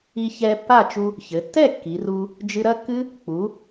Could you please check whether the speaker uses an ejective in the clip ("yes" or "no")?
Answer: no